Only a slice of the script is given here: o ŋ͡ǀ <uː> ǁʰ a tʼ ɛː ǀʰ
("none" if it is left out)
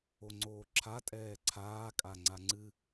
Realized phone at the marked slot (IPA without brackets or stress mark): oː